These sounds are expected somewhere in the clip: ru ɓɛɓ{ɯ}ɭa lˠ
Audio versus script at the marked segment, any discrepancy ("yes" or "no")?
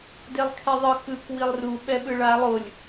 no